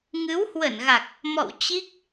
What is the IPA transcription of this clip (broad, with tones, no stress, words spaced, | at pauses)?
ŋɨ˨˦whwə˧˩nɣa˨˩k̚ | mɔ̰˧˨w t͡ɕi˦˥k̚